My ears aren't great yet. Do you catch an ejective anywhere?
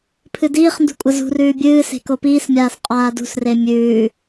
yes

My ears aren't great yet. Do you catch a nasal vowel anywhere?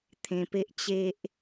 yes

